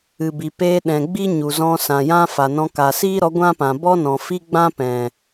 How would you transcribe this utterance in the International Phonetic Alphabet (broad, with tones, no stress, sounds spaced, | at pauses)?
ɨ˨ b i˨ p eː˧ ɗ ɛ̃˨ ɡ͡b i˦ ɲ u˨ z ɔ̃˧ s ã˨ j ã˦ f a˨ n ɔ̃˧ k a˨ s iː˦ ɾ ɔ˨˦ ɡʷ ã˦ p ã˨ b ɔ˦ n ɔ̃˨ f i˦ ɡ͡b ã˦ p ɛ̃˨